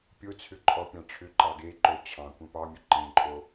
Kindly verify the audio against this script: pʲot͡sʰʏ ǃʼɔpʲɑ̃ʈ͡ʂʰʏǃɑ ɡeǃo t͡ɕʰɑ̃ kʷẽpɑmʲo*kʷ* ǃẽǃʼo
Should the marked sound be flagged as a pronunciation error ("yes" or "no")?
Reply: yes